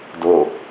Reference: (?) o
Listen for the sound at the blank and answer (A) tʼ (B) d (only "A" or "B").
B